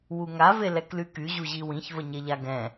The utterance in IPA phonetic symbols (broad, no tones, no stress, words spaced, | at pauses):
wuŋa velɛklyky ʑuʑiwĩç vəɲeʎaɡɛ̃